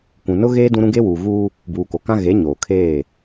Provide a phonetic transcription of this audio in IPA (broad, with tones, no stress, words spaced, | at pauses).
kʷũ˨nʊ˦ɣeː˦ dũ˦ɾũ˦ ɡe˦wuː˨ ɣuː˦ | buː˨ko˨kã˦ ɣe˨˦ ɲoː˨kʰeː˦˨